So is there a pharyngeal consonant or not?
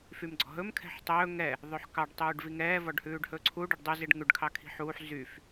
yes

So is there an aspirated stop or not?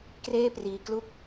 no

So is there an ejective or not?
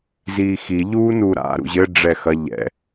no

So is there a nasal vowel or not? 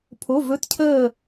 no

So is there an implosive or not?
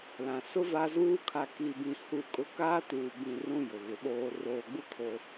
yes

